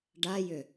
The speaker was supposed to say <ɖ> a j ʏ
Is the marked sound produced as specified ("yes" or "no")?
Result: yes